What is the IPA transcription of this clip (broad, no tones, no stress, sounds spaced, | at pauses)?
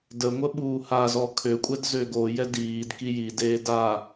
d ə ŋʷ ə ɓ uː h a z ɔ kʰ ø kʷʼ ɛ d z ø ɡ o j ɛ d iː d k i j i d eː d a